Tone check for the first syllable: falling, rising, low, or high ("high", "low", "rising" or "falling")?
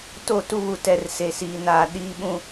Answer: falling